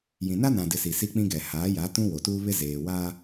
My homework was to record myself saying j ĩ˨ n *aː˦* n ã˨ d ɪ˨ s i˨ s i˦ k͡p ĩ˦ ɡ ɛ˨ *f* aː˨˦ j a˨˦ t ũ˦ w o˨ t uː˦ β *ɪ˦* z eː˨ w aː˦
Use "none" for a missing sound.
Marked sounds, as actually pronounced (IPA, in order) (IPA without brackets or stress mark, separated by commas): a˦, h, ɪ˦